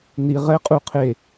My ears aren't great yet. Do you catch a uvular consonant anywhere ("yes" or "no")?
yes